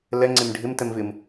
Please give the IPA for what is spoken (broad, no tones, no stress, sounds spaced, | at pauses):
l ɛ ŋ͡ǀ e m ɖʱ ɪ m t ɛ m v ɪ m